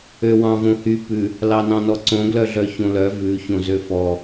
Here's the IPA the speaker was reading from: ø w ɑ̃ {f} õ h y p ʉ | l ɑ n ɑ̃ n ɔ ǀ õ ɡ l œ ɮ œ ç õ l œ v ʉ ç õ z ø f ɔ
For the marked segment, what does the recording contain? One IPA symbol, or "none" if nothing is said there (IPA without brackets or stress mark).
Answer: v